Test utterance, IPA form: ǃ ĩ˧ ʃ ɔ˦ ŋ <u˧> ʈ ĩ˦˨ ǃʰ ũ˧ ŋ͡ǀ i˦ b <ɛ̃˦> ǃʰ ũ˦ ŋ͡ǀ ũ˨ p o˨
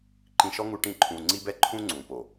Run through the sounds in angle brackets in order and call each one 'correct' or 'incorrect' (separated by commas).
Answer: correct, incorrect